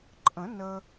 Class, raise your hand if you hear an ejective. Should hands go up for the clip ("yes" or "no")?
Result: yes